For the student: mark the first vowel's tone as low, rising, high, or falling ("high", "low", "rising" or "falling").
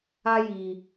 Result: high